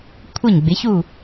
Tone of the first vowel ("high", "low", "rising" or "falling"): falling